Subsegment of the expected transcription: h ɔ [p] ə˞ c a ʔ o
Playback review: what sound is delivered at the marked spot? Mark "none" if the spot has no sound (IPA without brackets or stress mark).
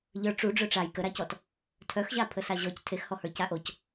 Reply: h